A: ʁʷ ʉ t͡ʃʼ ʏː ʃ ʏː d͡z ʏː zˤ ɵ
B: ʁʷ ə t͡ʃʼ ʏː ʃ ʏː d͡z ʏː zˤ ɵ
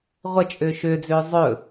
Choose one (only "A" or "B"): B